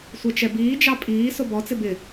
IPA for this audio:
sʷ ɛ t͡ʃ ɛ b iː d͡ʒ ɑ pʼ iː s o b ɔ t͡s ɪ b ɪ

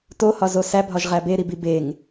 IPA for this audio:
t o h ɒ z o s æ bʱ ɒ ʒ ʁ æ b e ɾ i b i b e ŋ

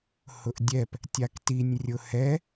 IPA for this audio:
h ʊ ʔ dʲ ɛ p | tʲ a k t i nʲ rʲ ʊ h ɛ

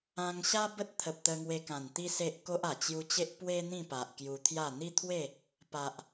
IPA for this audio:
ã˧ ŋ ɕ a˦ b ə˦ t̚ t̪ʰ ə˨ p̚ t̪ ə˧ ŋ w e˧ k ã˨˩ n t̪ i˦ s e˦ ʔ k o˦ ʔ a˨˩ t͡ɕ j u˧ t͡ɕ e˦ ʔ p w e˦ n̪ ĩ˥˧ p a˨ ʔ k j u˧ t̪ʰ j a˥˧ n̪ i˦ t̪ʰ w e˥˧ | p a˨ ʔ

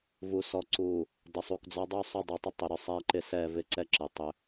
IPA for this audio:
v u˨ s ɔ˨ ǀ u˨ | d ə˨ sˤ u˨ k d͡z ɔ˦ dˤ u˦˨ sˤ ʏ˦˨ dˤ u˨ tˤ ə˦ tˤ ʏ˨ ɾ ʏ˦ sˤ ɛ˦ ǃ ɪ˦ s ɛ˦˨ v ɪ˦ ǀ ɛ˦ ǁ ɪ˨ tˤ ʏ˦

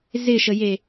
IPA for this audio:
z ɪ ʃ ə j e

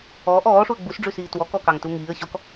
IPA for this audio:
ɔː ʔ ɔː ʂ u ə̯ ɡ͡b u s ɖ͡ʐ ʉ s iː t w ɔ k ɔ k ɑ ŋ t u ŋ iː ə̯ ɕ ɔ k

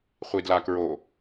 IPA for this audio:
χʷ i d l a k ɹ o

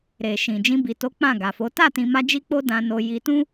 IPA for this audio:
ɾ e˨ ʃ ĩ˨ d͡ʒ ĩ˧ b i˨ t o˨˦ k͡p ã˦˨ ɡ a˨ f o˨˦ t a˦˨ t ĩ˧ m a˦ d͡ʒ i˦ k͡p o˦ d ã˧ n o˧ j i˧ t ũ˦

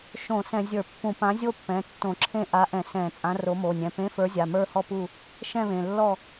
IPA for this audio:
ʃ õ˧˩˧ s ɛ̃˧˩˧ zʲ ə˞˧˩˧ pː ũ˧˩˧ p ã˨˥ zʲ o˥˧ pː ɛ̃˩˧˩ tː õ˧˩˧ ǁʰ ẽ˥˧ ʔ a˨˥ ʔ ɛ̃˧˩˧ s ɛ̃˧˩˧ t͡sʼ ã˨˥ r o˨˥ m o˩˧˩ nʲ ɛ̃˩˧˩ p ẽ˨˥ f ə˞˨˥ zʲ a˩˧˩ m ə˞˥˧ h ɔ˥˧ p u˥˧ | ʃ ɛ̃˥˧ β ẽ˩˧˩ lː ɔ˥˧

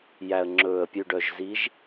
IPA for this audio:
j æ˨ ə̯ ŋ͡ǁ ɵː˨ ə̯ pʲ ʉ˨ ɖ œ˨ ʒ z i˨˦ ʒ

